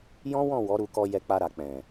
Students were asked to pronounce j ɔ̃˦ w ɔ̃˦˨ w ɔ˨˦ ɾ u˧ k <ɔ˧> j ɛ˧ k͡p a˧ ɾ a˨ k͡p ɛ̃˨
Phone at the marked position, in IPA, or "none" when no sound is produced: ɔ˧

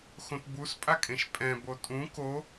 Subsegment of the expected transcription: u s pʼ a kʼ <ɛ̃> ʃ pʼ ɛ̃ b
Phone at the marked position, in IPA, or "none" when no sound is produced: ẽ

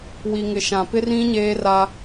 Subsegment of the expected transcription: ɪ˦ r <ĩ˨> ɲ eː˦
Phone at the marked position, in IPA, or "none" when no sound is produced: ĩ˦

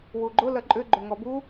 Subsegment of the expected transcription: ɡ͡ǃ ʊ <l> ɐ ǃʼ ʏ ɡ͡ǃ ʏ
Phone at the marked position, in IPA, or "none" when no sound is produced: l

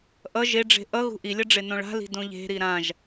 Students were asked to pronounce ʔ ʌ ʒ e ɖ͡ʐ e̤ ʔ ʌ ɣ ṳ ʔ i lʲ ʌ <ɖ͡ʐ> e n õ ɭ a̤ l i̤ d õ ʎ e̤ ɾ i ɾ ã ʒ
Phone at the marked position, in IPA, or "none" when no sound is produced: ɖ͡ʐ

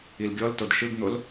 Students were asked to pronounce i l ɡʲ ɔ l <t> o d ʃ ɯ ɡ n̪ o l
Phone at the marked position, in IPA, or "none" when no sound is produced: t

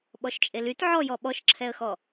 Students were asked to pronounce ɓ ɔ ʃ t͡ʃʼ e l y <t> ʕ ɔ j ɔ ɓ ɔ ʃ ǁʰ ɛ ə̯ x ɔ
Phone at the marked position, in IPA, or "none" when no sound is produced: t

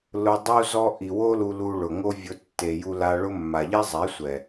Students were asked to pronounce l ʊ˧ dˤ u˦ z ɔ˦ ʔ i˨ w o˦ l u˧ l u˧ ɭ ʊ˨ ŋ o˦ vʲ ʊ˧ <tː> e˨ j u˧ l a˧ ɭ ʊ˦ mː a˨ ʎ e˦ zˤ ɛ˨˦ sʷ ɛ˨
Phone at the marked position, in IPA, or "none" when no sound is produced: tː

